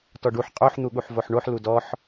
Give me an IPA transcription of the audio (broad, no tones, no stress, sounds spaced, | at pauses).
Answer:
t ɔ ɖ u ħ qʼ o ħ n̪ u ɠ u ħ v o ħ ɳ o ħ l u d ɔ ħ